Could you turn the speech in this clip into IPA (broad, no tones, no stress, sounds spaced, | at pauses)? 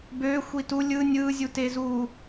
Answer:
b ø xʷ i t u lʲ ɯ nʲ ɯ zʲ u t e z u